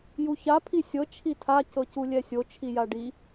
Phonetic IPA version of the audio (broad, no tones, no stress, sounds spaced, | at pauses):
j u ç a pʰ i sʲ ɤ t͡ʃʰ i tʰ a c ɤ c u lʲ ɛ sʲ o t͡ʃʰ i j a ɖ i